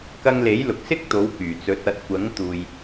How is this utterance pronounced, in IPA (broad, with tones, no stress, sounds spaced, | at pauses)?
k ɐ˧ ŋ l e˨˥ j l ʊ˨ k̚ s ɪ˥ k̚ t̪ o˨˥ w k yː˨˩ t͡s ɵ˨˥ t̚ ɐ˨˥ t̚ kʷ ɐ˨˥ ŋ t̪ uː˨ j